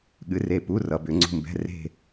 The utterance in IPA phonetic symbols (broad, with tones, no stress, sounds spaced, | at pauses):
ɠ ɨ˨˥ r e˦˨ p u˧˥˧ r ʌ˨˩˦ b ʏ˨˩˦ ŋ͡ǀ ṳ˦˨ m b ɛ̤˧˥˧ r e̤˦˨